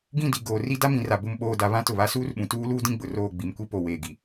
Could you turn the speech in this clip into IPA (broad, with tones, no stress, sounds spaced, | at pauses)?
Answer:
ɡ ĩ˦˨ d i˨ ɡ oː˨ r i˦ d a˦ m ĩ˨ r a˨ b ʊ˨ m ɓ oː˨ d a˨ β ã˦ t ʊ˨ β a˦ s uː˦ r ɓ ũ˨ t uː˦ l uː˦ d ĩ˦ ɡ͡b ʊ˨ r oː˦˨ ɡ͡b i˨ m kʷ i˦ p o˨ w eː˨ ɡ i˨